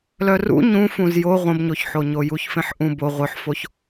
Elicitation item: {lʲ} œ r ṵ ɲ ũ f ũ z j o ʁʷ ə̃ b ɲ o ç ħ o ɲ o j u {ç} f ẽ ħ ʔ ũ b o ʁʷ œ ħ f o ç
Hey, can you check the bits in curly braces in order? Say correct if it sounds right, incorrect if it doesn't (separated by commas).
incorrect, correct